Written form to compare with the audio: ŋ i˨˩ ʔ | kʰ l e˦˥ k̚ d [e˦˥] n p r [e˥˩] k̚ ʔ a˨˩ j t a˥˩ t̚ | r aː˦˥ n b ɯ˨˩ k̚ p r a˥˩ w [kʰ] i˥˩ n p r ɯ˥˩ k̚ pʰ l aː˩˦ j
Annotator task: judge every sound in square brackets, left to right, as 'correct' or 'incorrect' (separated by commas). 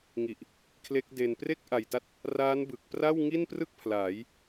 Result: incorrect, correct, incorrect